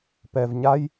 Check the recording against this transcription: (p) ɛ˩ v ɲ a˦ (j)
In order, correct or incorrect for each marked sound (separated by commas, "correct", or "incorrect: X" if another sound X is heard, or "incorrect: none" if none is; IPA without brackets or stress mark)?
correct, correct